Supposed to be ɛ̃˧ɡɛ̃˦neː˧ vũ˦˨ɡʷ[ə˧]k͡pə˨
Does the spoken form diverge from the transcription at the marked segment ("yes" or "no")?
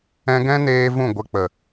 no